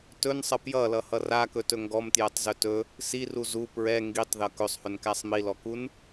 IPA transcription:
t ɵ n sˤ ʌ p j ʌ l ʌ h ʌ r a k ɵ t ɵ ŋ ɡ ɔ m t j ɛ tˤ z ɵ t ɵ | s i r u z u p ɹ ɛ ŋ ɡ i tˤ ð ʌ k ɵ sˤ h ɵ n k æ sˤ m i l ɔ k u n

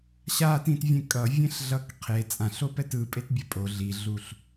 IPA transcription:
ɕ a t ĩ t vʲ ẽ kʼ ʌ vʲ ẽ ɬ ɮ ʌ k qʰ e t͡sʼ ã ɬ o p ɛ t ɯ pʼ e t bʲ ɛ pʼ o ɮ i ɮ u ɬ

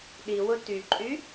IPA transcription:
ɗ i w ʊ t y ǃʼ y

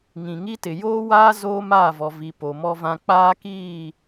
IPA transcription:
ŋ ĩ˨ ŋ i˦ t ɪ˨ j oː˦ w aː˦ z oː˦ m aː˦˨ v ɔ˨ v i˨ p o˨ m ɔ˦ v ã˦ k͡p aː˦ k iː˦˨

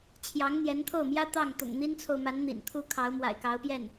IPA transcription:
t͡ɕʰ j ɑ˧˥ ŋ n̪ j ɛ˧˥ n t̪ʰ o˥˩ ʊ̯ m j ä˥ t̪ ɑ˥˩ ŋ t̪ ʊ̰˨˩ ŋ n̪ i˥ n t͡sʰ o˨ ʊ̯ m a˧˥ n n̪ ḭ˨˩ n t̪ʰ u˥ kʰ ɑ˧˥ ʊ̯ m w a̰˨˩ ɪ̯ k ɑ˧˥ ʊ̯ p j ɛ˥˩ n

